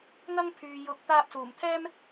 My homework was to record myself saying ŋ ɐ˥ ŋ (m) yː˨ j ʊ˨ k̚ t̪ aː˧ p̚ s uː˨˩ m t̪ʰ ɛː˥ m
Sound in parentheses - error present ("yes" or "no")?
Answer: yes